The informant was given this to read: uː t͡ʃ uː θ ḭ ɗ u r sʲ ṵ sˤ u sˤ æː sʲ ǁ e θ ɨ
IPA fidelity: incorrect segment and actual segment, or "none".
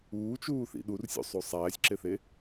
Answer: ɨ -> e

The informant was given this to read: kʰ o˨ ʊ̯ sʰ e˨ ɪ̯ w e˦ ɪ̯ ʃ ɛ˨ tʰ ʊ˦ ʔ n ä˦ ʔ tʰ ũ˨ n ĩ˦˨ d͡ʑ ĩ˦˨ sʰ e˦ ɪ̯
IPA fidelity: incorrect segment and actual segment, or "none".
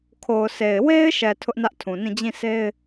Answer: none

